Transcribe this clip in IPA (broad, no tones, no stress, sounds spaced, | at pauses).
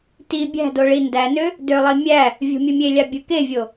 t i bʲ æ̤ d o ɭ i n d æ n ø | d ø lˠ i mʲ æ | vʲ o̤ mʲ ɯ mʲ e lʲ ɑ bʲ ɯ k e vʲ o